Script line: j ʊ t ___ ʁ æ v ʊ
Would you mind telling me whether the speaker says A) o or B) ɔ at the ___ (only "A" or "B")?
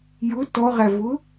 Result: B